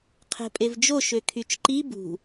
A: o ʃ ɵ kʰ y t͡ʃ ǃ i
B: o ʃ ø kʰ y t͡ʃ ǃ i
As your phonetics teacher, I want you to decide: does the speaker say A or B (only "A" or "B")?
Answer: B